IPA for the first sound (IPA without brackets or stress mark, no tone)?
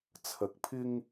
t͡sʰ